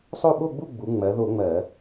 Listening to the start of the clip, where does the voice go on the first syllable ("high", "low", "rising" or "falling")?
falling